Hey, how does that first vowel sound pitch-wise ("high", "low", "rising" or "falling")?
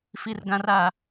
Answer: high